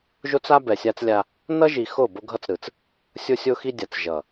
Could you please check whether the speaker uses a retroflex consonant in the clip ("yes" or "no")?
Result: no